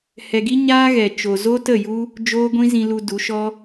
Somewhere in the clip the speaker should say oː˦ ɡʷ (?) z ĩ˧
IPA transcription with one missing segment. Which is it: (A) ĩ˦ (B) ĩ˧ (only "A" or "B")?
A